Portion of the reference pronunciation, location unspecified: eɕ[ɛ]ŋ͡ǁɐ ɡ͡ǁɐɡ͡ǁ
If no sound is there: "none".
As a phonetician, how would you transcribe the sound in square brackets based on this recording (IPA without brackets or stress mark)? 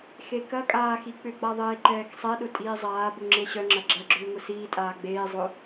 œ